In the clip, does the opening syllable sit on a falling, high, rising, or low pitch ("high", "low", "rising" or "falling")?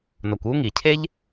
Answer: low